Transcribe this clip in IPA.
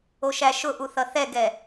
o ʃ æ ʃ ʊ ʔ u θ ʌ θ ɛ ɡ ɛ

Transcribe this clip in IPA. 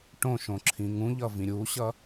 ʈ õ ʃ õ ǁʰ ĩ ŋ ũ ʎ ʌ v ĩ ɾʲ u ɕ ʌ

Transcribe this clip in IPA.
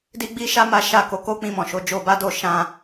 d i˦ ɡ͡b i˦ ʃ a˦ m a˦ ʃ a˦˨ k o˨˦ k o˦ k͡p ĩ˧ m ɔ̃˨ ʃ o˨˦ d͡ʒ o˧ b a˦ d o˦˨ ʃ ã˧

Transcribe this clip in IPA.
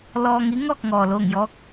l ɔː˧ ŋ i˧˥ ŋ ɔː˥˨ k̚ ŋ ɔː˩ l oː˧˩ ŋ j ɔː˧˥ k̚

